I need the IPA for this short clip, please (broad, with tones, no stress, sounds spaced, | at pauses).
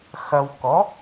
x ɐ˨ w k ɔ˩˥